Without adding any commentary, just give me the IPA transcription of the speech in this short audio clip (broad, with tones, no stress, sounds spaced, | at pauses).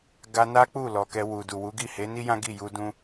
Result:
ɡ a˧ n a˦ k͡p u˦˨ l ɔ˨ k ɛ˧ w u˨ d u˨ w u˨˦ ɡ i˦˨ h e˨˦ n i˦ j ã˦ ɡ i˦˨ j u˧ d ũ˦